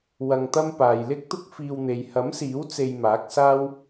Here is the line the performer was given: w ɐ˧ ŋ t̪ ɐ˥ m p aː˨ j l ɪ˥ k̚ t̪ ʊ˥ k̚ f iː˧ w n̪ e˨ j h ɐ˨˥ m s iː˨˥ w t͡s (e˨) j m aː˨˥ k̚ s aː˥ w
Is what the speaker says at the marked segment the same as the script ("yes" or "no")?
no